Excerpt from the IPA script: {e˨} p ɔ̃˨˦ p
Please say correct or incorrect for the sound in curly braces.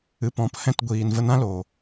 incorrect